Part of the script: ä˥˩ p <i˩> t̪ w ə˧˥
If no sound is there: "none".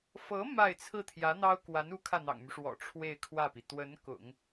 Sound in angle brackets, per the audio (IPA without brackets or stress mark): i˩